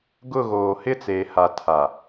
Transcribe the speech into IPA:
ɡʊ˦˨ɣoː˨ hɪ˦t͡seː˨ha˨ tʰa˨

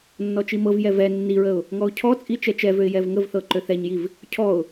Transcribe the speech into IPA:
nːɔt͡ʃimɤvjɛ vɛ nːiɹəʊ̯ | ŋɔʊ̯cʰɔt͡sʼi t͡ʃɛt͡ʃɛvøɪ̯ jɛvŋəvθɤ ǃøθɛɲjiv | cʰɔʊ̯

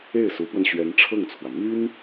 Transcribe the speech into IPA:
e˥˩ɪ̯su˧˥pwə˧n ɕɥɛ˧˥nʈ͡ʂʰɤ˥˩ŋt͡sʰwä˩ my˥n

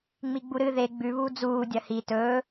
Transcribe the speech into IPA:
ŋ͡miɡ͡buɾɨ ðe ɡ͡bʉβuː d͡zuː dʲɐhi tɵː

